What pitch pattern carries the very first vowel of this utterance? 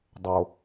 low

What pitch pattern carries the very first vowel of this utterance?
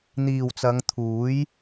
low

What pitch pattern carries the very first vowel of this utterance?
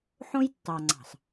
high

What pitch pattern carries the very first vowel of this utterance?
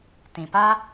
low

